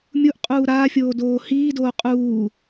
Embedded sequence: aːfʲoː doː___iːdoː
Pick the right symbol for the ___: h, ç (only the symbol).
h